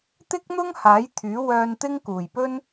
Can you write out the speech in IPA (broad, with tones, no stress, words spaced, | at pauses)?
t̪ɪ˥k̚n̪ʊ˥ŋ haː˨˥jt̪ʰyː˨˥ wœː˧nt̪ɪ˥ŋ kuː˨jpɵ˥n